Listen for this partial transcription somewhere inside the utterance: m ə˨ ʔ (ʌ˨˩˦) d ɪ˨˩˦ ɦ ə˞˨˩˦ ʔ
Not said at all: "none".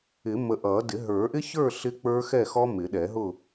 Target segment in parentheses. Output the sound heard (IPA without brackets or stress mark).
ʌ˨˩˦